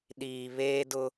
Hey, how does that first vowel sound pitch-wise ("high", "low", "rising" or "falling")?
low